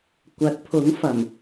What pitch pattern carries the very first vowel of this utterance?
rising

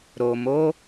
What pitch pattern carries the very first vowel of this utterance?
low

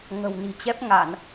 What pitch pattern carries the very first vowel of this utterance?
low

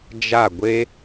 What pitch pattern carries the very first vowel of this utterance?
falling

